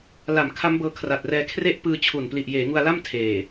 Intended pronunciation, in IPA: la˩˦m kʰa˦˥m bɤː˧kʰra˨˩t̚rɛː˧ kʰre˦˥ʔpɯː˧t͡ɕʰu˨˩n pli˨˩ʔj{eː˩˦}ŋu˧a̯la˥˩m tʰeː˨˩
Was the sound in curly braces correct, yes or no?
yes